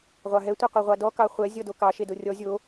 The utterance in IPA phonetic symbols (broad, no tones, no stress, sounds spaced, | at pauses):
ʁʷ ɑ ɦ ɛ tʷ e qʷ e ʁʷ ɑ d ɔ k ɑ χʷ ɛ zʲ ɔ d o k ɑ ʃ e d o rʲ ɔ zʲ o